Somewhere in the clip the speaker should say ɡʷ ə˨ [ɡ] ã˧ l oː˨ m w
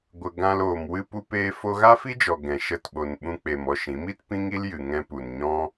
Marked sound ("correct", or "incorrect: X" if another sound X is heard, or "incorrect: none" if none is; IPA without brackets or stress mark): correct